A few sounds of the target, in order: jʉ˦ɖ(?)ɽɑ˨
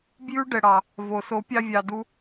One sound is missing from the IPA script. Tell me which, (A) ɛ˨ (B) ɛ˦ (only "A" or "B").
A